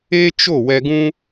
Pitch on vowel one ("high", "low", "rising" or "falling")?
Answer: high